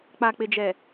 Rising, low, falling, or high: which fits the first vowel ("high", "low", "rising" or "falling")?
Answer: low